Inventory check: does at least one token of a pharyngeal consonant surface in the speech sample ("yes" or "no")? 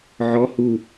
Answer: yes